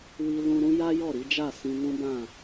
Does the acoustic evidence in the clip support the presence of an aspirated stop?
no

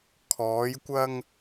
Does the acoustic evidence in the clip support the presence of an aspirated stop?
yes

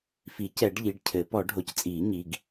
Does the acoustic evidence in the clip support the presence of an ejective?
yes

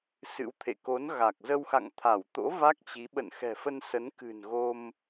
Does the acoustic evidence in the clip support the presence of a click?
no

